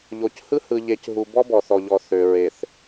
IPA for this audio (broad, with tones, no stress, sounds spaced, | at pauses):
ʎ o˨ c h ɯ˦ h ɯ˨ ʎ e˨ c ɦ u˨ b ɔ˦ b ɔ˨ θ ɔ˨ ʎ ɔ˨ θ ø˨ ɹ e˨ θ